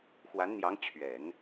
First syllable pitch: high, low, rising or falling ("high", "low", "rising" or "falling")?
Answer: rising